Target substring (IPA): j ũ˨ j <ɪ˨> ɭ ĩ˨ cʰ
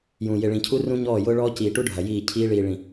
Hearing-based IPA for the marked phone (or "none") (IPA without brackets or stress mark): ɪ˨